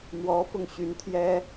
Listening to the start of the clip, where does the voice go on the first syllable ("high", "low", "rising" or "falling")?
rising